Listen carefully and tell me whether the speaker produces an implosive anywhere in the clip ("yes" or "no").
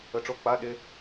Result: yes